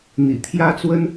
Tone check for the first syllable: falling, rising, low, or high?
low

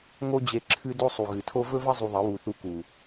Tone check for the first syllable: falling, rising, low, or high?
high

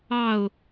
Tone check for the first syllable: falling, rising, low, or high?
falling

